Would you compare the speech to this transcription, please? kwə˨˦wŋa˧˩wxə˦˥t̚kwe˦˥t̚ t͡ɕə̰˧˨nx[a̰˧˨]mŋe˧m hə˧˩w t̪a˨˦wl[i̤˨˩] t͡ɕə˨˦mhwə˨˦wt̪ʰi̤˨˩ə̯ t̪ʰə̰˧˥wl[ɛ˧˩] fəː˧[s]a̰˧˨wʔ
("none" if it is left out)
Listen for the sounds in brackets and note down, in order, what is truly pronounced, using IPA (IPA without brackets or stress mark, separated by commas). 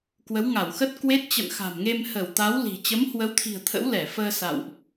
a̤˨˩, i̤˨˩, ɛ˧˩, s